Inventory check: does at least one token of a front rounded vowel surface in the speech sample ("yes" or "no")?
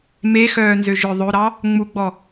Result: yes